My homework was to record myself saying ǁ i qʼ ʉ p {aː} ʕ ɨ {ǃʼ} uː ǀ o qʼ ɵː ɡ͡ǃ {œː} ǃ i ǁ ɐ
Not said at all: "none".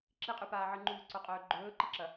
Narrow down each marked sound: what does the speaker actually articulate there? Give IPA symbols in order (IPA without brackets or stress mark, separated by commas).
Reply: aː, ŋ͡ǃ, ɵː